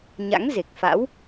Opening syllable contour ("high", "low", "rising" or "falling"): rising